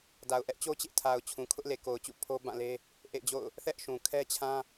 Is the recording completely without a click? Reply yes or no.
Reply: yes